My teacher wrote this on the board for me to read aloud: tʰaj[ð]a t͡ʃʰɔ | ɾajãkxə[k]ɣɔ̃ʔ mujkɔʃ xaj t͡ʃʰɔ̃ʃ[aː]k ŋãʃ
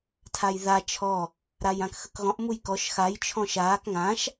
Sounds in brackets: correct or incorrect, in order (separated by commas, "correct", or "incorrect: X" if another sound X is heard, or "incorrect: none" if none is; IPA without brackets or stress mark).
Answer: correct, correct, correct